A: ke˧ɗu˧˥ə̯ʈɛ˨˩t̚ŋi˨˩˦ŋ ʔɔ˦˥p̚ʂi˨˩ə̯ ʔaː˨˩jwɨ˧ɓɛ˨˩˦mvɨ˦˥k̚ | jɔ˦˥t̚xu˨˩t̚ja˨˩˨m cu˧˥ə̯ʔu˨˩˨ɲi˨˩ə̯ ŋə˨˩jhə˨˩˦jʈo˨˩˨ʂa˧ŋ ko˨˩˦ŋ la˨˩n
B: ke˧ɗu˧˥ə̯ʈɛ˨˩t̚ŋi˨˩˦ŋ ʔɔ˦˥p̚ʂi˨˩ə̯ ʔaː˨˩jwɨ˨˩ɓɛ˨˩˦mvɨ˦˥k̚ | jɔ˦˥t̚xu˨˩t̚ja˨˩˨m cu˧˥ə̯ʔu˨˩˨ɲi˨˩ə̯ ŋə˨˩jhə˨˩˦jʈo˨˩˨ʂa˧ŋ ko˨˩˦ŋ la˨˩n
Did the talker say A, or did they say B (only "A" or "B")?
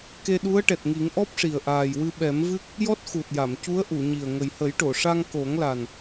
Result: A